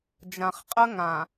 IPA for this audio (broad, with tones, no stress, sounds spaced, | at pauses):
d͡ʒ ã˨ χ qʼ ə˦ ŋ ã˨